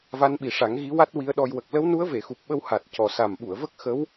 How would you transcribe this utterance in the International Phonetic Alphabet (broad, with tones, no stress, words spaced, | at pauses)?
va˧˥nɓi˨˩ʂa˨˩˦ŋ ɣi˧˥wa˦˥t̚wi˧˥ə̯ɗɔ˧j wə˨˩k̚ lə˧˥wnu˧˥ə̯ve˨˩˨ xu˨˩p̚ɓə˧w ha˨˩t̚ cɔ˨˩sa˨˩mɓu˨˩˨ə̯və˦˥k̚ xə˧˥w